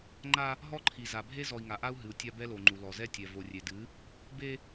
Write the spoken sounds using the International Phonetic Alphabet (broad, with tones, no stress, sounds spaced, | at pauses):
ŋ͡ǃ a˦ | ɦ ɔ˦ ǃʰ i˨ z a˨ bʱ e˦ z ɔ˨ i̯ ŋ a˨ ʔ a˦ u̯ ɦ ɨ˨ u̯ tʲ a˦ b ɛ˦ l o˨ ŋ͡ǃ u˨ l ɔ˨ z ɛ˦ tʲ ɛ˨ v o˨ rʲ e˨ d ɨ˨˦ | b e˦